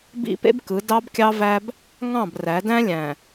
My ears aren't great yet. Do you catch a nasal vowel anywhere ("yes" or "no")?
yes